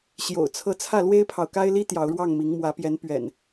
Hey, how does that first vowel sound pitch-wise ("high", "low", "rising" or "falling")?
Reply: low